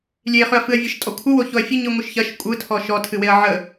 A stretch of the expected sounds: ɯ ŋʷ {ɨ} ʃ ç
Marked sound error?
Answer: no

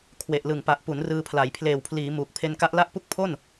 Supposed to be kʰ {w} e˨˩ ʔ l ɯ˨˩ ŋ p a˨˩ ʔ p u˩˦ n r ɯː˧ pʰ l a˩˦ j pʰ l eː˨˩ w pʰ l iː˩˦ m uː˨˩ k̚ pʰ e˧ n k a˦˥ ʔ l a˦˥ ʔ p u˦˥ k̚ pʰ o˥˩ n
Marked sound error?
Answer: no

